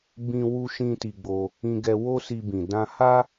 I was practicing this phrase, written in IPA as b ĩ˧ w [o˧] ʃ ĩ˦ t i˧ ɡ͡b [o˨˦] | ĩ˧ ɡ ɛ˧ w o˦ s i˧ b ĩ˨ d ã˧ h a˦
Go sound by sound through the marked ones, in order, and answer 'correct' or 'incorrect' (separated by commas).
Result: incorrect, incorrect